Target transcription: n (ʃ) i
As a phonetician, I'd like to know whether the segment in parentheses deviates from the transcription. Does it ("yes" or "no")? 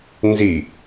yes